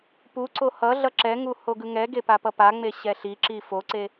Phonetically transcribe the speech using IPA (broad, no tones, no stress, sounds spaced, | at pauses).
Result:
p u ǀ o h ʌ ɮ ʌ ǁ ɛ ŋ u h o ɡ ɯ ŋ ɛ ɡ e p a p ʌ p a ŋ͡m e ɕ ɛ ɬ i ǁ i f o ǀ e